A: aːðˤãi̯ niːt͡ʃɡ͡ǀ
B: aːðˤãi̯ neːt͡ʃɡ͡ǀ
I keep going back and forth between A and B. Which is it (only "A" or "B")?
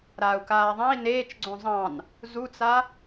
B